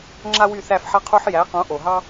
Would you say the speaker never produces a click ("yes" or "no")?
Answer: no